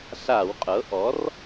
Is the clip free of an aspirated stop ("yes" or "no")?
yes